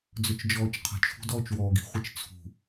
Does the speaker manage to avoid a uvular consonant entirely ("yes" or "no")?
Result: no